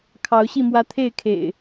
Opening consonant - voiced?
no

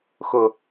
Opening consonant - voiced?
no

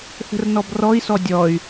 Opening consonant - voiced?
no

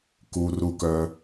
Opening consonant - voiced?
no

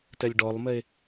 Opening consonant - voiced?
no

